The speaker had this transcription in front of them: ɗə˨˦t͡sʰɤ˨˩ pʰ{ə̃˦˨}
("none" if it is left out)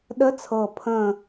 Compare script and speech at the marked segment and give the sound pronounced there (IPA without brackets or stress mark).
ə̃˦˨